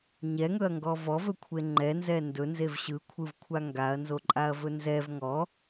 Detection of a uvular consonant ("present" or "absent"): absent